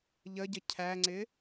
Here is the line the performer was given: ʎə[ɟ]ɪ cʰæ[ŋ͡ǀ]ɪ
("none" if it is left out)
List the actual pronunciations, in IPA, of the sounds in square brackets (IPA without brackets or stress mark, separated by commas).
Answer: ɟ, ŋ͡ǀ